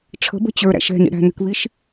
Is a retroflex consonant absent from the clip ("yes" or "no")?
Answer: no